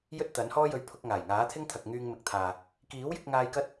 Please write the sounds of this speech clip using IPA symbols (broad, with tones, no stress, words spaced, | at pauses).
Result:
jɵ˥t̚t̪ɐ˨˥nhɔː˥jɵ˧ɥ pʰʊ˧k̚ŋaː˨˩j ŋaː˨˥t̪ʰɪ˥ŋt̪ʰɐ˨k̚ŋyː˧ŋ mɪ˨k̚t̪ʰaː˨ | kiː˨˥wjɪ˧k̚ŋaː˧j kɐ˥t̚